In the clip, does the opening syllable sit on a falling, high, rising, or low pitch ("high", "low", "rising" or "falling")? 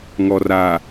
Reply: low